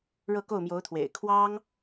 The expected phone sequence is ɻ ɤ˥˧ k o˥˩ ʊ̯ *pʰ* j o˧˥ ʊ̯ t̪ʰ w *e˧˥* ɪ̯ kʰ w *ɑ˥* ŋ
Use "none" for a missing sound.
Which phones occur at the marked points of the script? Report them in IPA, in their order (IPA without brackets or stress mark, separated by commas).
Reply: m, ḛ˨˩, ɑ˥